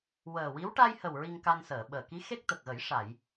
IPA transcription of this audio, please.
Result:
w əː˨˩ w i˧˥ w ʈ a˧ j h ə˨˩ w ɹ i˧ ŋ k a˧ n s əː˨˩˨ ɓ əː˨˩ k i˧˥ x e˦˥ k̚ t̪ ə˨˩ k̚ ɣ ə˨˩˦ j ʂ a˨˩˨ j

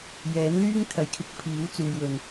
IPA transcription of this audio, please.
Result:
j ɛː˨˥ n l yː˥ ŋ t̪ʰ ɐ˨˥ j kʰ ɪ˨˥ k̚ pʰ iː˨˥ w t͡s uː˨ j w ɵ˨ n

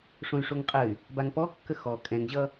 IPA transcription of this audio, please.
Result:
ʂ õ y̯ ʂ o ŋ qʼ ə y̯ | b a ŋ p ɔ kː ə x ɔ kʼ ɛ̃ ŋ ʑ ʌ

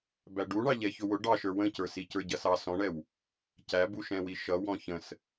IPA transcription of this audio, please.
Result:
b æ ɖ u ɳ ɑ ʎ ɛ ç ʊ w ʊ ɖ ɑ ʃ ə˞ w ə̃ c ə˞ s i c ə˞ ɟ ʌ s ɑ s ɔ̃ ɳ ɛ w | c æ b u ʃ ɛ̃ w i ʃ ʌ w ɔ̃ ç ə̃ s

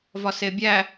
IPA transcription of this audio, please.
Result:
v ɒ s e bʲ æ

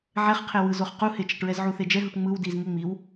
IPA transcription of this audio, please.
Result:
ʕ ɛ χ qʰ e w ɯ z o χ q u h e t͡ʃ ɛ ʈ ɹ ɛ z ʕ u θ e d͡ʒ ɛ ɦ u ʈ ŋ͡m ɯ w d i z ŋ e ŋ͡m i w

